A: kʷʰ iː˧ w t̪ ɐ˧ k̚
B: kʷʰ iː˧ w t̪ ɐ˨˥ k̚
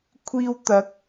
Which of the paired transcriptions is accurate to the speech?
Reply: B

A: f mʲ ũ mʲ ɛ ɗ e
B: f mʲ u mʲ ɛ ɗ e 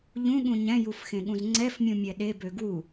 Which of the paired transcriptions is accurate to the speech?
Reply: A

